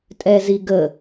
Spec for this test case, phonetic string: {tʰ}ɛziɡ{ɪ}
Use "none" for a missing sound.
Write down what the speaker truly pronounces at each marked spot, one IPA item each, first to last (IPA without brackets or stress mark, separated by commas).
tʼ, ə